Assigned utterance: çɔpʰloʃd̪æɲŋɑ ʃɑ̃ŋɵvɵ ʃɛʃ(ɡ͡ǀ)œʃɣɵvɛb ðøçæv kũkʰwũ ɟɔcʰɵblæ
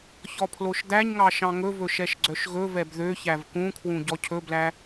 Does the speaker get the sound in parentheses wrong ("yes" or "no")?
no